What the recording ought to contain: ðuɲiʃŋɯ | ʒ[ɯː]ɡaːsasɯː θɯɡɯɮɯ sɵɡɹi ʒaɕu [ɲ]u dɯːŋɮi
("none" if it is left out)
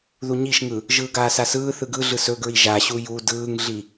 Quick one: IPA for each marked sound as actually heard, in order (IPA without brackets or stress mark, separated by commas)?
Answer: ɯː, j